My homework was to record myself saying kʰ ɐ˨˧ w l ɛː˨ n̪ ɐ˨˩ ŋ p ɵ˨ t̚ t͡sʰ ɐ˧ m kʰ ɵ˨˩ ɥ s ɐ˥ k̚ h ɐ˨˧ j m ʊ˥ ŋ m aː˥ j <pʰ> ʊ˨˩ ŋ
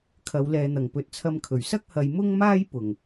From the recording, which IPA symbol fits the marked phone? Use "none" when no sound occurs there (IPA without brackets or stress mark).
p